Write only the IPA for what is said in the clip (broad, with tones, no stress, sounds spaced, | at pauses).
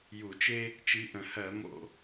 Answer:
j u˧˩˧ t͡ʃ e˥ | t͡ʃ i˨˦ ʔ ə̃˨˩ h ɜ˧˩˧ m o̰˧˩˧